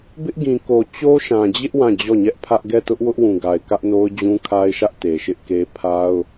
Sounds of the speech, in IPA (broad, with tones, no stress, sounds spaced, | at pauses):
b ɪ˦ ʔ ɡ ĩ˨ k o˨ t͡ɕ o˦ ʃ ã˨ d͡ʑ ɪ˦ ʔ w ã˦˨ d͡ʑ ɔ˦˨ ɲ ɛ˦ ʔ pʰ ä˦ ʔ ɡ ɛ˦˨ t ʊ˦ ʔ w ʊ˦ ʔ w ũ˨ ɡ a˨ ɪ̯ k ä˦ ʔ n o˦ ʊ̯ d͡ʑ ũ˦ kʰ a˦ ɪ̯ ʃ ä˦ ʔ t e˨ ʃ ɪ˦ ʔ k e˦ pʰ a˦ ʊ̯